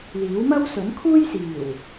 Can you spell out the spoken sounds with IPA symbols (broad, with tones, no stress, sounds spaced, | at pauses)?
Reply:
l iː˨˥ w m ɐ˥ w s ɵ˨˥ n kʰ uː˥ j s iː˨˩ w